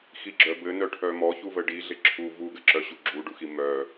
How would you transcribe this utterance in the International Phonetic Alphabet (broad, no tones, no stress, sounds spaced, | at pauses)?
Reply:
x i ɡ͡ǁ œ b ɘ n œ ʈʰ œ m ɔ ç u v ə ɖ i ɮ ɪ ǁʰ u v u ɡ ɘ ǁ œ ɕ u ɡ͡ǁ u ɖ u x i m œ